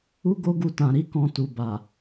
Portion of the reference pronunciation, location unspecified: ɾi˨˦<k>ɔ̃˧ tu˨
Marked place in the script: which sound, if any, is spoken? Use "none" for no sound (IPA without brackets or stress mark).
k